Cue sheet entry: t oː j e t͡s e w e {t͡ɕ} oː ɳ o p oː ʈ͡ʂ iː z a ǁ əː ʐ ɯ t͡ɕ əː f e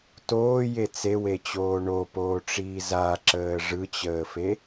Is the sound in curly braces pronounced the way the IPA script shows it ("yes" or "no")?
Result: yes